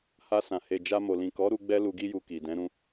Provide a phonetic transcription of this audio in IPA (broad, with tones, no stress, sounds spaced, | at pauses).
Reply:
h a˧ s ã˨ h e˨ d͡ʒ a˧ m o˨ l ĩ˨ k ɔ˨˦ ɾ u˧ ɡ͡b ɛ˦ l u˧ ɡ i˦ j u˧ k i˨ d ɛ̃˨˦ ɾ ũ˧